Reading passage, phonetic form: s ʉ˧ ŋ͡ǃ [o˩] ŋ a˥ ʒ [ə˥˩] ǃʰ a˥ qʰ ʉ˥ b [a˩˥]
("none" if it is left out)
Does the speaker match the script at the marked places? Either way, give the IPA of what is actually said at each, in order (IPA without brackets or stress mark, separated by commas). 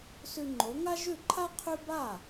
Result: o˩˥, ʉ˥˩, a˥˩